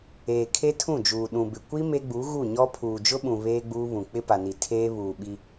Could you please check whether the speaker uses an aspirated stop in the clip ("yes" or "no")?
yes